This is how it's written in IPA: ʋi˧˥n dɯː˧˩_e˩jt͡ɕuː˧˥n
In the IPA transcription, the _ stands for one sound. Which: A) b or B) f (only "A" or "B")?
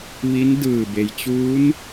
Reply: A